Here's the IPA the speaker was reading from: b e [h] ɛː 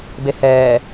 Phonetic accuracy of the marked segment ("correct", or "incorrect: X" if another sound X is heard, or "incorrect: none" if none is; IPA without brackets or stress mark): correct